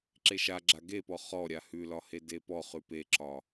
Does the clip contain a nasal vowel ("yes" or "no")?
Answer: no